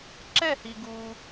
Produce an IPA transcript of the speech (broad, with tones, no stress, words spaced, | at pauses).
ǁɛ˥˧hi˧ɡu˧